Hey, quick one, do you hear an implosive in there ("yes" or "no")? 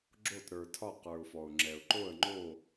no